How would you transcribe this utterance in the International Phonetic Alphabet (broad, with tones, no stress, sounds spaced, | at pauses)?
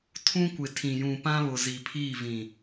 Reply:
tʰ ũ˦ kʷ ɪ˨ tʰ ĩ˨ j ũ˨ p ã˦ β ʊ˨ z i˨ pʰ iː˦˨ v ĩ˨